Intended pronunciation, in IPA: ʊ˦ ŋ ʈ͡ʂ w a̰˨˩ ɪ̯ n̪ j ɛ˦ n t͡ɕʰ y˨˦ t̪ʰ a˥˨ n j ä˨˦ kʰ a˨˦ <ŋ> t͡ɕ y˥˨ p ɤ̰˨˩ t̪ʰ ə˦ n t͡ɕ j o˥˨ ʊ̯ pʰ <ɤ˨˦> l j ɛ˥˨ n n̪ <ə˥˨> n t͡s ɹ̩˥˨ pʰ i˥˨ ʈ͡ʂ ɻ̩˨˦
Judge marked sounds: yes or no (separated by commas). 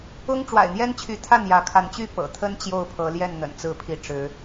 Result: no, yes, no